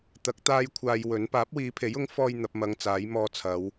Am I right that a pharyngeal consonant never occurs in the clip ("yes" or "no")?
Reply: yes